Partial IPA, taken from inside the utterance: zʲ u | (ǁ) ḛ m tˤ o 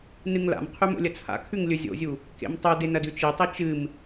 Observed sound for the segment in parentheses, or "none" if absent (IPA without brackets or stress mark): k